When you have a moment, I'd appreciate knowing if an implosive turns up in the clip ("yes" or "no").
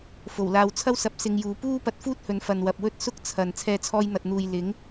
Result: no